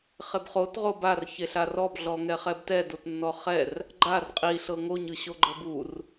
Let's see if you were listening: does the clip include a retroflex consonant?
no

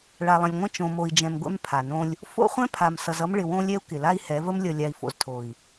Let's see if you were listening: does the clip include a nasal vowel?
yes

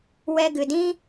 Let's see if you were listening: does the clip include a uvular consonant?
no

